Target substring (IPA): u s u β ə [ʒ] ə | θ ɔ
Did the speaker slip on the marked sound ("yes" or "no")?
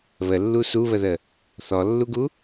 yes